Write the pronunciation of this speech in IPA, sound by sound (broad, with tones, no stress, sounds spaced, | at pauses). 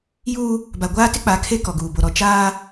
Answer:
j uː˦ | b a˨ ɡʷ aː˦ t ɪ˦ k͡p a˨˦ kʰ e˦ k ɔ˨ ɡ uː˨ b o˨ ɾ ɔ˨ t͡ʃ aː˦